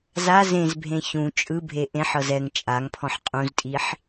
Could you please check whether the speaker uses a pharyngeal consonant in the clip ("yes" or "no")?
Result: yes